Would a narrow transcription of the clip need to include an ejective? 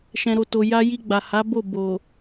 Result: no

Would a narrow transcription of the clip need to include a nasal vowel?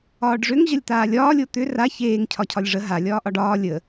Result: no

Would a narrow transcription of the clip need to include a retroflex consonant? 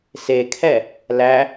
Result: no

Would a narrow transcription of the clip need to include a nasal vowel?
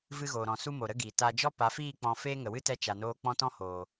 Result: yes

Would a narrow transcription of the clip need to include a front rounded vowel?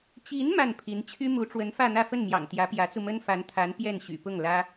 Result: yes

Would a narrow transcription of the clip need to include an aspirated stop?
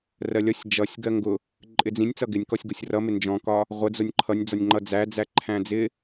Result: yes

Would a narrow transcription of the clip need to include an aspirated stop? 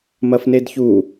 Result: no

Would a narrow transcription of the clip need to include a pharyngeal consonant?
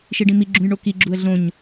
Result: no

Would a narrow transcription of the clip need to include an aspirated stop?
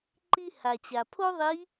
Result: yes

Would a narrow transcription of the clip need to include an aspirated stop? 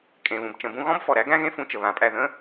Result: no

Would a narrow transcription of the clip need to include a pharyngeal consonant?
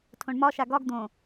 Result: no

